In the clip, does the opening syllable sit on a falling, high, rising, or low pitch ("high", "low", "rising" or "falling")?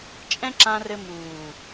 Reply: high